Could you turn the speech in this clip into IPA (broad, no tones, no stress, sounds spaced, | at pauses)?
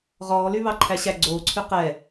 ʁ ɔː l y β ɑ ǃʰ æ ɕ æ ɡ͡ǀ oː ǀʰ y q ɛ